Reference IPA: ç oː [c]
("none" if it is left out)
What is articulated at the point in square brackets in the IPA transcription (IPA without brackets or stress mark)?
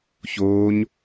ɲ